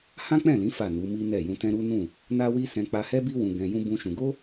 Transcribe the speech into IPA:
h ã˦ k͡p ɛ̃˦˨ l ĩ˨˦ f a˦˨ n u˨˦ m i˦ n ɛ˦˨ j ũ˧ t ɛ̃˦ ɾ u˦ n ũ˦˨ | n a˦ w i˦ s ɛ̃˧ k͡p a˧ h ɛ˦ b i˦ w ũ˧ ɡ ɛ̃˧ j ũ˦ b ũ˦ ʃ ũ˧ ɡ o˦

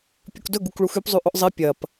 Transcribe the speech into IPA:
pʲ u k d ɵ ɡ u k ɭ u x ʉ p zˤ ʉ ʔ ɵ ʔ zˤ e pʲ ɐ p

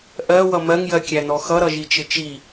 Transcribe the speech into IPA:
ʔ ɜ w ʌ m ɜ ŋ j ɜ kʲ æ n ɔ x ʌ ɾ ʌ ʒ i t͡ʃ ɪ t͡ʃ i

